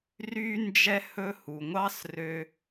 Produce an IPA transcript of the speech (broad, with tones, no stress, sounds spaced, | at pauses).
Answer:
r y˦ n d͡ʒ ɛ˦ h ɵ˦ h u˨ ŋʷ ɑ˥ s r ø˦